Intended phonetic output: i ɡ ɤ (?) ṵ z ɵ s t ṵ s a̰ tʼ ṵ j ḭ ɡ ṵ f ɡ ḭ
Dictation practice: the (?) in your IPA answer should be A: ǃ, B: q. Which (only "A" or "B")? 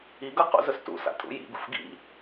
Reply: B